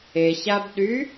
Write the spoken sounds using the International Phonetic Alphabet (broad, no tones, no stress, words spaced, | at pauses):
eɕabɗy